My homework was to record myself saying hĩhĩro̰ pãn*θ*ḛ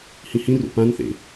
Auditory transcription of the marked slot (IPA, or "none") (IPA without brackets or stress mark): θ